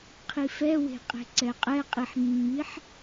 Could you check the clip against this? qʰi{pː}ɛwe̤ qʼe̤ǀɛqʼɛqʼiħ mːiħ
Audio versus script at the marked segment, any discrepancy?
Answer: yes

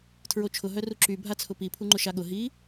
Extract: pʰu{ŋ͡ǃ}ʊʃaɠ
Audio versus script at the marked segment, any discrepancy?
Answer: no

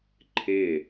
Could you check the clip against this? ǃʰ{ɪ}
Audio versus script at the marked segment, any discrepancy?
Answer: no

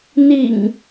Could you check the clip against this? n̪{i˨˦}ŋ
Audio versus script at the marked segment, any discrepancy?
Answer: yes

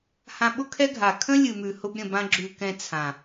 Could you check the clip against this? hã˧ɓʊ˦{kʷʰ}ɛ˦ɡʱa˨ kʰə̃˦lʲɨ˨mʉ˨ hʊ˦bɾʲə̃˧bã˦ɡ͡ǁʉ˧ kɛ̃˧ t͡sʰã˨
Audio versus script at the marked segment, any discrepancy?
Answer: yes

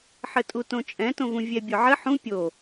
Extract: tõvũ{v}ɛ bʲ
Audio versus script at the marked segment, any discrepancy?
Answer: yes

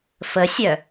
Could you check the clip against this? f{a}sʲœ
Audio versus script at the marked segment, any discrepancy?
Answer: yes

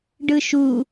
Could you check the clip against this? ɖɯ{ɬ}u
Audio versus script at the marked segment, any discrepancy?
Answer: yes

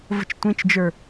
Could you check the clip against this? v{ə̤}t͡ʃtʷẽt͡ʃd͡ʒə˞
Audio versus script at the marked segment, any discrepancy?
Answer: no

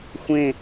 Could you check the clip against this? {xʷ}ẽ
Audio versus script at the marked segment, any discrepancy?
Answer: no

